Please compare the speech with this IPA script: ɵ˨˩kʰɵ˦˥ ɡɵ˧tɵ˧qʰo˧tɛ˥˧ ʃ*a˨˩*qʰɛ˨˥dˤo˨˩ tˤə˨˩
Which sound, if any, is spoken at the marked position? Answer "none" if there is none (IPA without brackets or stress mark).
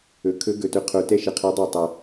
ə˨˩